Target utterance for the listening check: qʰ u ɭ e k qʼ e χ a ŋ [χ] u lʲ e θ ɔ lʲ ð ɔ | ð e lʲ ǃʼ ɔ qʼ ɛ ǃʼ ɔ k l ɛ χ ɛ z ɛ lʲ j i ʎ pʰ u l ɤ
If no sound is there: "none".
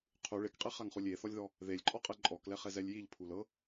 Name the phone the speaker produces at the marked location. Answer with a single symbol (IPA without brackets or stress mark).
χ